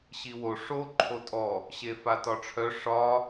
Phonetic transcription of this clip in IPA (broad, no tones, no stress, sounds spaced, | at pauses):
ɕ i w o ʂ o ǃʰ o tʼ ɔ | ɕ e f a t ɒ ʈ͡ʂʰ œ ʂ ɒ